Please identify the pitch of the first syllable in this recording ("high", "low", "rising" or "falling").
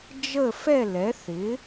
falling